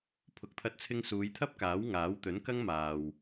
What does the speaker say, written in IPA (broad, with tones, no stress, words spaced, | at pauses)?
pʰʊ˨k̚t̪ʰɐ˧t̚t͡sʰɪ˧ŋ suː˨˧jt̪ʰɐ˥p̚kaː˨˥w ŋaː˨˥wt̪ɵ˨˥nkɐ˥ŋmaː˨w